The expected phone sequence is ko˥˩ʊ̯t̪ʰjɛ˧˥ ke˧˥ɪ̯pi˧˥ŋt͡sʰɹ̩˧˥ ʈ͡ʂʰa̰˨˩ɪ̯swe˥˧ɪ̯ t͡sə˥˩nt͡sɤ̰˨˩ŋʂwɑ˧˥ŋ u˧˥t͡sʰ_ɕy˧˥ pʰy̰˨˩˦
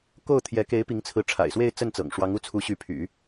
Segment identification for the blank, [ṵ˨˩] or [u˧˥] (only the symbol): u˧˥